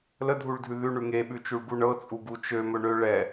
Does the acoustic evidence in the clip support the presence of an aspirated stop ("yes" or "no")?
no